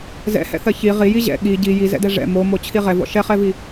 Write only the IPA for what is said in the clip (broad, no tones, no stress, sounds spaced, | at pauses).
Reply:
z ɛ̰ h ɛ̰ θ ɜ ç i ʁ i j i ʑ ɛ̰ ɠ i ɟ i j i z ɛ̰ d ɛ ʐ ɛ̰ m o m o t͡ɕʰ i ʁ ɛ v ɔ̰ ʃ ɛ χ ɛ v i